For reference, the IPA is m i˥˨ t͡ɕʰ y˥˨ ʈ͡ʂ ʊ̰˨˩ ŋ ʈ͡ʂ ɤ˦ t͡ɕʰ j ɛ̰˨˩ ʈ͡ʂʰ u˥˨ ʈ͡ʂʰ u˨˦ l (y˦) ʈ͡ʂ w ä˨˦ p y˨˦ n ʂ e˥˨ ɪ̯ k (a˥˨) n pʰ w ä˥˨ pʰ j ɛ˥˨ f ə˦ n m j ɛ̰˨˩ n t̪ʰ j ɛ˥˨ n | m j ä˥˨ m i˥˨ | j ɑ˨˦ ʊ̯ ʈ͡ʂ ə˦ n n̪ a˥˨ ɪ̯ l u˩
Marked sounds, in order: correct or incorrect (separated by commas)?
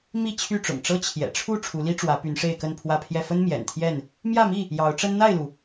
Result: incorrect, incorrect